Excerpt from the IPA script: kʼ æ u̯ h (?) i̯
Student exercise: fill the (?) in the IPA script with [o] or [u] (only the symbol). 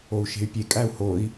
o